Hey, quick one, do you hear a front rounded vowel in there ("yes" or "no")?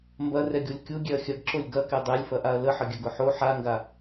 no